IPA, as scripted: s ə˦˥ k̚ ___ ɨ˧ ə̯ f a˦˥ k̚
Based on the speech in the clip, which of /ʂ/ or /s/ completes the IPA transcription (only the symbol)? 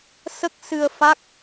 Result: s